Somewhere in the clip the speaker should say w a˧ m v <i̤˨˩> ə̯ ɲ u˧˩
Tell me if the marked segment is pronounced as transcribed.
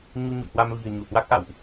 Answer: yes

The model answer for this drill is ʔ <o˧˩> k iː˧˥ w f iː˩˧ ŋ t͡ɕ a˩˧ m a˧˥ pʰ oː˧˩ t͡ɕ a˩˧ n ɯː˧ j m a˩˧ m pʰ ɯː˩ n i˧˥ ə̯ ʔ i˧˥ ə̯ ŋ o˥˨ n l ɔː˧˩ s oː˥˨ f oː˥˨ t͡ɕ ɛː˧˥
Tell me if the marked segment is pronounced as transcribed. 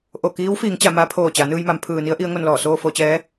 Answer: yes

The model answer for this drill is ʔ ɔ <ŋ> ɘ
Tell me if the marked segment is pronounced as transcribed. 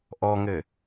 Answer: yes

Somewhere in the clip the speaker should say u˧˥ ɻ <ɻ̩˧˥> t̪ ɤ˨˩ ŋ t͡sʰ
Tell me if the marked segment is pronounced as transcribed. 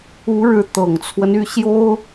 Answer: yes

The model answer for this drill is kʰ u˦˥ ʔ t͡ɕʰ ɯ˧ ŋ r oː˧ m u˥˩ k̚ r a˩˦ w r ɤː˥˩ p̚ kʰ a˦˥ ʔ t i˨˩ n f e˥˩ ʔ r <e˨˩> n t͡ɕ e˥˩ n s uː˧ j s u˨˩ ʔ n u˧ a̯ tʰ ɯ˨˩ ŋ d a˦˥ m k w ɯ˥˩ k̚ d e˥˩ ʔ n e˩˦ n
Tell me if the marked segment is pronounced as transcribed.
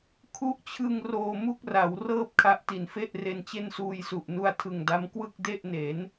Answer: no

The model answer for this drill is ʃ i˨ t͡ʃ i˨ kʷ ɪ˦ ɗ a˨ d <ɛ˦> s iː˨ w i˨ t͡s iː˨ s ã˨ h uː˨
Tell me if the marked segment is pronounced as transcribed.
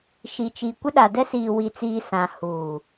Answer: yes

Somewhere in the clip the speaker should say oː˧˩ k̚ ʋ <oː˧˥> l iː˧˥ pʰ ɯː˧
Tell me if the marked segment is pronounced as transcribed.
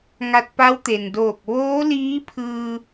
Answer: yes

